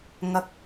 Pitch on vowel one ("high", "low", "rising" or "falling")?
low